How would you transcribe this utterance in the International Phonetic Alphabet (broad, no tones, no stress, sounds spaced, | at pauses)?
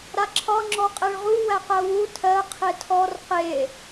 ɾ a ǁʰ ɒ ŋ͡ǁ ɔ qʼ e ɭ ʁ u w æ q ɜ w u tʰ ɜ qʰ e tʰ ɔ r q e